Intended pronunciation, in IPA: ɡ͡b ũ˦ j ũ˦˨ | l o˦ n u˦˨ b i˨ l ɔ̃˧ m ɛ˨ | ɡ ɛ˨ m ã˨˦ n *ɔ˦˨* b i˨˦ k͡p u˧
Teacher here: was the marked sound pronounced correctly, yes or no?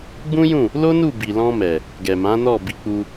yes